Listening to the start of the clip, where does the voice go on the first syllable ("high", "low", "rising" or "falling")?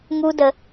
high